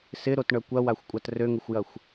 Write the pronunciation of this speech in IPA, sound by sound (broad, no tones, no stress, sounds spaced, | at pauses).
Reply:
s ɪ ɾ o t ɳ œ kʷ ɐ w a xʷ kʷʼ a t r ø ŋ ɪ xʷ j ɐ xʷ